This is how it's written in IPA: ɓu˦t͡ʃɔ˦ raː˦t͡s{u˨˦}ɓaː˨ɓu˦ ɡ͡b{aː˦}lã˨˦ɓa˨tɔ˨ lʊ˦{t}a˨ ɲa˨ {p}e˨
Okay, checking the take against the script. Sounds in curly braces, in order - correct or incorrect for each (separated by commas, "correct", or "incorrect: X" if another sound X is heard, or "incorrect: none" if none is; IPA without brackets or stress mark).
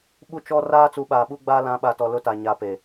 correct, correct, correct, correct